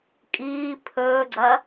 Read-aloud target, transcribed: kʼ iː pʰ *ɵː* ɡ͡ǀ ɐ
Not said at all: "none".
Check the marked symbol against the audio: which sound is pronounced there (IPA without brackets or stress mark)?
ɵː